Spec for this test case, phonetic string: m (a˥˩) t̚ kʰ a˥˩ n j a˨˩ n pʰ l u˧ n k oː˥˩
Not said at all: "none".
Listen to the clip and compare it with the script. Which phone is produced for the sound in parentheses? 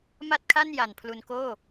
a˥˩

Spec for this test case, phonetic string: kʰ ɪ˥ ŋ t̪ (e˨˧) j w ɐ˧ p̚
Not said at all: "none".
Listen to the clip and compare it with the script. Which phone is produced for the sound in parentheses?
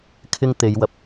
e˨˧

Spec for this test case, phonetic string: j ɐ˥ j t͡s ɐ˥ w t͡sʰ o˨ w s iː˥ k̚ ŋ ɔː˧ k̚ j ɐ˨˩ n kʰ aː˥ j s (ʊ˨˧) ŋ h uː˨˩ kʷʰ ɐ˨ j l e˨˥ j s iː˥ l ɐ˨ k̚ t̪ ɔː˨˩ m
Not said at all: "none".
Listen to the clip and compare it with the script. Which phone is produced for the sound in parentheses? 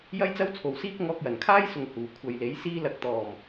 ʊ˨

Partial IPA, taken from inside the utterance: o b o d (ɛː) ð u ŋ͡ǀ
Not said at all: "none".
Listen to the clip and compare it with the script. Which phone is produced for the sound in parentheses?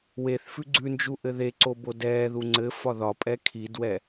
ɛː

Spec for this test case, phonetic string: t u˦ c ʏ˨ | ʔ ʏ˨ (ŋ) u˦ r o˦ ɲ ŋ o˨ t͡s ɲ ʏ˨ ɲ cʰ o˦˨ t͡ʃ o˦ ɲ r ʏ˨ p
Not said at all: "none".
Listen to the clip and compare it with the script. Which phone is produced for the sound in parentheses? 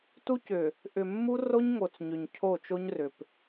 mː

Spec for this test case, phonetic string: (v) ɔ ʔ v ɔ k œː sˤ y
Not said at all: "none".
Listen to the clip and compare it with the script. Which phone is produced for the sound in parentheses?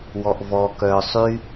w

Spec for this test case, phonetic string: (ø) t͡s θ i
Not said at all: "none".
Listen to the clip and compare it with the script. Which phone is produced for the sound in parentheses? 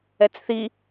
ɛ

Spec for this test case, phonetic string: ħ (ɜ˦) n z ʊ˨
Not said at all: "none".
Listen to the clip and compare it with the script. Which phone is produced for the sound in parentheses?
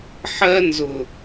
ɜ˦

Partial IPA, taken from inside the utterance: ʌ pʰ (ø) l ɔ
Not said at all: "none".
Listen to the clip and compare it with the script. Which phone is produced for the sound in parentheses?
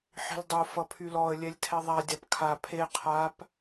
y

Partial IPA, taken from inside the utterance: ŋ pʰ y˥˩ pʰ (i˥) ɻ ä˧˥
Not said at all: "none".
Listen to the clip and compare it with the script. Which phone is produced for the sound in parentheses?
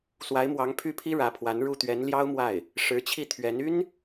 i˥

